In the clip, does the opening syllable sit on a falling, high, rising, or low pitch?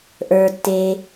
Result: low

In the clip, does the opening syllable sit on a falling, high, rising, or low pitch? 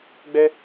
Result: high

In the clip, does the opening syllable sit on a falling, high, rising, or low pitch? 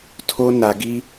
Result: high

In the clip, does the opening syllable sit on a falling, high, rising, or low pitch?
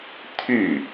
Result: falling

